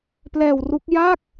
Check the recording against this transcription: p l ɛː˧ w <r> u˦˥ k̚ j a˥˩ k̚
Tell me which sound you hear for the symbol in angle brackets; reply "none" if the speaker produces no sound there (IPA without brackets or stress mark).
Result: r